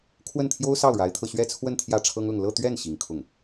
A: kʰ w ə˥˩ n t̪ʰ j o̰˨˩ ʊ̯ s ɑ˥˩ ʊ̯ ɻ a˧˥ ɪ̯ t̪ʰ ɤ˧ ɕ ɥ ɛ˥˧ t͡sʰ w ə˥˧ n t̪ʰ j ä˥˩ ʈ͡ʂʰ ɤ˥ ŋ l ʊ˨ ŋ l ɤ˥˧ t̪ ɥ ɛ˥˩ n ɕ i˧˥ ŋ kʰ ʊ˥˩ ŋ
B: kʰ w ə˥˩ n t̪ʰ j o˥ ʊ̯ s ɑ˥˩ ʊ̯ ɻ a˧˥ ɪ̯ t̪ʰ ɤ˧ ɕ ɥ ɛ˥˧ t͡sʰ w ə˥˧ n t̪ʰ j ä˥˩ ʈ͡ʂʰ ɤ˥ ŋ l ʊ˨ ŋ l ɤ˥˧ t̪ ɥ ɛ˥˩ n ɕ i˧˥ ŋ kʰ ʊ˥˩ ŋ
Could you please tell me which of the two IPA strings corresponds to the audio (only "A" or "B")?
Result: B